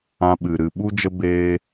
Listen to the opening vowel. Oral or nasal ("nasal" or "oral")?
nasal